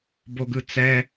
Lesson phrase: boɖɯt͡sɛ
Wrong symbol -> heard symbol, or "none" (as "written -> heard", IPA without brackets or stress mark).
ɖ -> ɡ